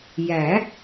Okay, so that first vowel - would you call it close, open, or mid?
open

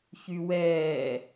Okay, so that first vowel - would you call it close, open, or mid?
close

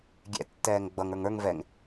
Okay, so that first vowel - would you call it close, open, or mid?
mid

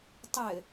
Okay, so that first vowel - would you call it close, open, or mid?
mid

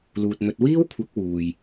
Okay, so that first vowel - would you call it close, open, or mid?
close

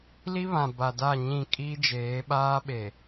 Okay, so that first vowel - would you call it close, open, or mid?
close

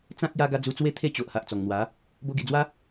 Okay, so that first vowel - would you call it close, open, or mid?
open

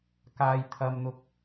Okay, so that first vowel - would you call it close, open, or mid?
open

